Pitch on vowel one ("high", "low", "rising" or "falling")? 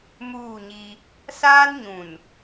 falling